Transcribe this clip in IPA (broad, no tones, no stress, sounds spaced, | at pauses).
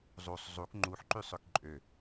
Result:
zˤ u sˤ zˤ u k ŋ͡ǃ u ħ ǃ y sˤ ø k ǃʼ ø